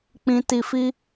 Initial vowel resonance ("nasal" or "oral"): nasal